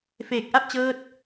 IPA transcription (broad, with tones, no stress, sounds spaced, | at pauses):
f eː˨˩ k̚ ʔ a˥˩ p̚ t͡ɕ ɤː˦˥ t̚